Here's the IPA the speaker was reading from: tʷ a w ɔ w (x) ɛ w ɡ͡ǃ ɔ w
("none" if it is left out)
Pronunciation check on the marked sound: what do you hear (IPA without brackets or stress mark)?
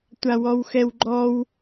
x